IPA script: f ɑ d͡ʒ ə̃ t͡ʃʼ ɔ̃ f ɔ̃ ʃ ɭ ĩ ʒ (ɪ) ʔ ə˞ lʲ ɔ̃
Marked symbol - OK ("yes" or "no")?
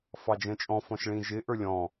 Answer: yes